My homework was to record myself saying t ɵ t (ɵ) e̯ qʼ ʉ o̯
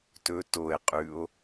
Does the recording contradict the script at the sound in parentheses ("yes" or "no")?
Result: yes